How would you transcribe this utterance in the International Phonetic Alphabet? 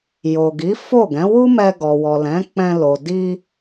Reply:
j o˨ ɡ i˨˦ f o˦˨ ɡ ɛ̃˨˦ w u˦ m ɛ˧ ɡ ɔ˨ w ɔ˨ l ɛ̃˨˦ k͡p ɛ̃˧ l o˨ d i˧

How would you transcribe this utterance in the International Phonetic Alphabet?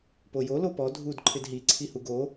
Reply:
p o j o l o p ɔ dʱ u d ǃʰ ɪ d ɦ i ǀʰ i h u ɡ o

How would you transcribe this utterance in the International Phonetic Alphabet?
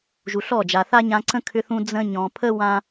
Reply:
ʒ u˨ ɬ ɔ˦˨ d͡ʒ a˨ θ a˦ ɲ ã˧ ǀ ə̃˦ kʰ ʏ˦ θ ũ˦ d͡z ə̃˧ ɲ ɔ̃˨ pʰ ə˦ w ã˦

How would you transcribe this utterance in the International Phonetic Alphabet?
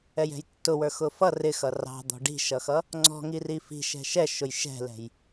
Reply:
ɛ j ɛ̤ j tː ʊ w ə˞ x ʊ f ʌ r ɪ x ʌ r ɑ̤ d̪ ɔ̤ ɖ i̤ ʃ ʌ x ʌ | ŋ͡ǀ ɔ̤ ŋ i r i f i̤ ʃ ɛ̤ ʃ ɛ ʃ ʊ j ʃ ɛ̤ l ɛ̤ j

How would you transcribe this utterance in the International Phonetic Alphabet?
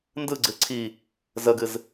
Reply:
n d ɯ ɡ͡ǀ ɨ ǀʰ i | z ə ɡ ɨ z

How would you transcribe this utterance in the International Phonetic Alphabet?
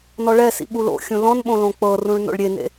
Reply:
n ɔ ɭ ɛ s ḭ ɓ u l o̰ xʲ ũ l ɔ̃ n ɓ õ l õ k͡p ɤ r ũ ɭ n o̰ ɭ ɾʲ e n ḛ

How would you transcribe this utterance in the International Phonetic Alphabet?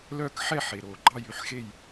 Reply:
l œː˥˨ k ħ ɛ˥˨ ħ e˩ ɾ oː˩ ɡ͡ǃ ɑ˥˨ j y˧˥ ħ x e˥˨ j

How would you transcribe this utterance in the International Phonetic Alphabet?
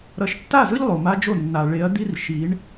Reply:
ɾ ʌ˨ ʃ tː a˦˨ z ɯ˦ ʎ lˠ o˨ m a˦ d͡ʒ o˦˨ nː a˨ ɭ e˨˦ ɐ̯ d̪ i˦ r ʃ i˨˦ ɳ

